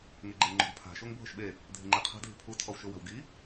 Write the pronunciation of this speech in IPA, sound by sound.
ŋ e ɡ͡ǃ e ŋ͡ǃ o̤ ɡ pʰ a̤ ʃ o ŋ bʱ ʊ ʃ ɓ e | dʱ ɪ ŋ͡ǃ e qʰ a̤ dʱ i̤ pʰ u tʰ ɔ w ʃ ʊ w a̤ w ɡ i

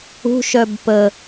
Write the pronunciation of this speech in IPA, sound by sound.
ṳ ʃ œ b p ə

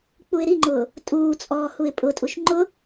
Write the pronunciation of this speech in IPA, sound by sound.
k͡p u ɪ̯ ɾ i ŋ͡ǃ ʊː | tʼ uː t͡sʼ ɔː h u ɪ̯ pʼ ʊ tʼ u ʃ ŋ͡ǃ ʊ

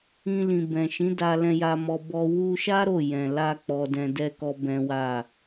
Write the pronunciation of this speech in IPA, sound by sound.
ĩ˧ l ĩ˨ b ɛ̃˨ ʃ ĩ˨˦ d a˧ l ɛ̃˧ j a˧ m ɔ˧ b ɔ˧ w u˧ ʃ a˦ ɾ o˦˨ j ɛ̃˨ l a˧ k͡p ɔ˧ d ɛ̃˧ d ɛ˦ k ɔ˦ b ɛ̃˦ w a˦˨

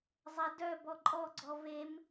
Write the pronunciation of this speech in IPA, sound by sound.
zˤ ɛ d œ b ɔ ǃʼ ɔ ɡ͡ǀ ɔ v e m

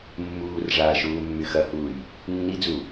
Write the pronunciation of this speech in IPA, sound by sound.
mː uː r ʐ aː ʃ uː mː y x ɐ h uː j | nː i d͡z u

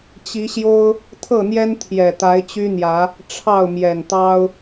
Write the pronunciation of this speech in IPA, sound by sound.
t͡ɕ i˨˦ ɕ j o˦ ʊ̯ | t̪ʰ ɤ˥˨ n̪ j ɛ˦ n t̪ʰ j ɛ˨˩ t̪ a˨˦ ɪ̯ t͡ɕ y˦ n̪ j ä˨˦ | ʈ͡ʂʰ ɑ˥˨ ʊ̯ m j ɛ˨˩ n t̪ ɑ˦ ʊ̯

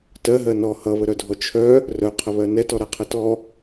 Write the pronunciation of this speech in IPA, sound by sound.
t ɜ ɦ ɜ n ɔ h ʌ β ə ɾ œ dʱ ɔ t͡ʃʰ œ | r œ qʰ ə β ɜ n ɛ t ɔ ɾ a qʰ ə t ɔ

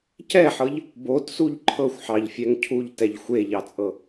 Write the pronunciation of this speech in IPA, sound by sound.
c ɛ ħ ɤ ʎ | b o t s u ʎ ǃʰ ɤ xʷ ħ ɑ ʎ fʲ ɛ ŋ cʰ u ʎ t ɛ ʎ xʷ e ʎ ɑ t͡sʼ ɤ

